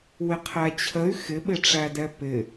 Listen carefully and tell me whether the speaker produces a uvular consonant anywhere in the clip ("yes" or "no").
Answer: yes